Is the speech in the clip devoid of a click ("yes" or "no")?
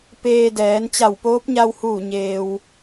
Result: yes